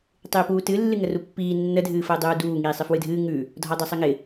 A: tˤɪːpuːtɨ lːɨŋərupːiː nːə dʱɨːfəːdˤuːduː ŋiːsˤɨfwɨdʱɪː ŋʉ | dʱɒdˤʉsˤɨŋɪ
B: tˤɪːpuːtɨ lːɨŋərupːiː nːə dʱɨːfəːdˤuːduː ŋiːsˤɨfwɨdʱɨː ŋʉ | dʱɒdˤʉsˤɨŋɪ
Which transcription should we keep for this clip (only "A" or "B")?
B